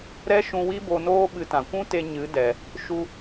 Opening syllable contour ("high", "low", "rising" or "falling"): high